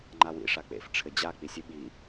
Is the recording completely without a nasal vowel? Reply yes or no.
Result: yes